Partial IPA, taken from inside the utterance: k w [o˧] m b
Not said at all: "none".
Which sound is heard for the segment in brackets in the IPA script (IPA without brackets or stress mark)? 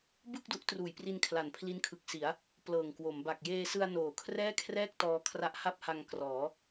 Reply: o˩˦